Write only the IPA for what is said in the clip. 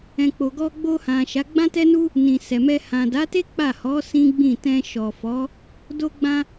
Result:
ɛ̃˨k͡po˨ɡɔ˧ ɡ͡bo˧hã˨ ʃa˨˦ ɡ͡bã˦tɛ˦nu˦ | nĩ˨sɛ˨mɛ˧ hã˨da˨˦te˦ k͡pa˦˨ hɔ˨˦ sĩ˦ɡ͡bĩ˦˨ tɛ̃˧ʃɔ˨fɔ˨˦ | do˧ɡ͡bã˧

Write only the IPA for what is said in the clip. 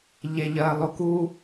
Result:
ʎeʎɜːlˠoku

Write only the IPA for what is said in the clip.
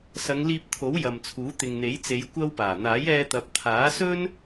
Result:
sɐ˨˧ŋliː˧p̚t̪ʰo˨˥w jɐ˨mt͡sʰuː˨˥ t̪ɪ˨ŋn̪e˨˥jt͡se˨˧j kʷɐ˥wpaː˨˩ n̪aː˨˥jɛː˧t̪ɐ˨˥p̚ t̪ʰaː˨˥ sɵ˥n

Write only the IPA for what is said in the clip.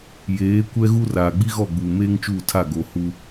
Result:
jeː˨˦ kʷɛ˦ɣu˦raː˨ ɡ͡bi˦ɣɔ˦˨ɡ͡buː˨ meː˦ŋt͡ʃuː˦˨tʰa˦˨ ɡo˨hu˦

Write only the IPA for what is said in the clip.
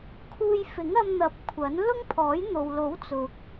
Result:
kʰuː˧jfɪ˨˥ŋɐ˧mn̪ɐ˨˥p̚ kʷʰɐ˨˥n lʊ˥ŋpʰɔː˨˥jn̪o˨wlo˨˥w t͡sʊ˨k̚

